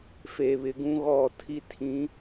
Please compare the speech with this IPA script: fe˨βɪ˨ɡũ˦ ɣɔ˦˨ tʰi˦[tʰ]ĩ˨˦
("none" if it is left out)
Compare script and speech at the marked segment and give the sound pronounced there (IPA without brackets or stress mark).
tʰ